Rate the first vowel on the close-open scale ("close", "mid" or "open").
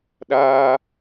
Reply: open